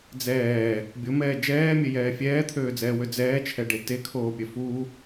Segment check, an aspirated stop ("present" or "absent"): present